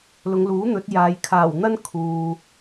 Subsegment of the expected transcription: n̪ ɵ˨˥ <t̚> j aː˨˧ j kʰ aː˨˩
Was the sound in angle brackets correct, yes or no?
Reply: yes